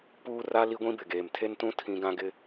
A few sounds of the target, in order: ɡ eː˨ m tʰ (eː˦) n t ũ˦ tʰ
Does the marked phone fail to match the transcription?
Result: yes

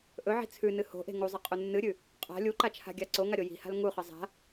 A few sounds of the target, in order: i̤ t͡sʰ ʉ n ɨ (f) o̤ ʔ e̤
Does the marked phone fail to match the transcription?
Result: yes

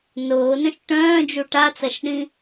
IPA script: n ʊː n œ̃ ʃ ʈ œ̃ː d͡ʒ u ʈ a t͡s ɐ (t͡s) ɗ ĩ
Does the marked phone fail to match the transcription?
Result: yes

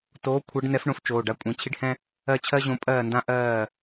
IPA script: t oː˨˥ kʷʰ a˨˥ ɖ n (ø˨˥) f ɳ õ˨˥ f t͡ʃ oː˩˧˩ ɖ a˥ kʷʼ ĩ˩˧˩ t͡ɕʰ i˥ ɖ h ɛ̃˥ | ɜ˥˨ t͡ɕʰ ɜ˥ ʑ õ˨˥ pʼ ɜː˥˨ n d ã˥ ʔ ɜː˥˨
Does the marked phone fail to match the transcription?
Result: yes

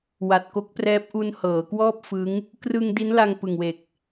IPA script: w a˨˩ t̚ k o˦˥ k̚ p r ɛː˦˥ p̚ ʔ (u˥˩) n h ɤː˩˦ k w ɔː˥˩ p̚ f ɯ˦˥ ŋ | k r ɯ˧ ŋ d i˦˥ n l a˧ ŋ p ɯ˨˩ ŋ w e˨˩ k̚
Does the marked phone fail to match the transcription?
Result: yes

